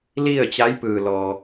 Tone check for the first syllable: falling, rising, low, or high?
falling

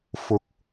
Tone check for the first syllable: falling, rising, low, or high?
rising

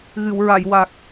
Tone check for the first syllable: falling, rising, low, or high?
low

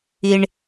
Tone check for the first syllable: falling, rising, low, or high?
high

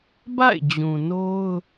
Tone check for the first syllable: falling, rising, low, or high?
falling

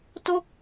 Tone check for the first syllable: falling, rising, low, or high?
falling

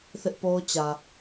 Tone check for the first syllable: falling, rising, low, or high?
high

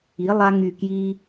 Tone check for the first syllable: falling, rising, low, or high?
rising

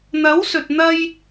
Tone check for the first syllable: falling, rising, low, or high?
rising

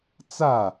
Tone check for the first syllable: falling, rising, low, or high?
falling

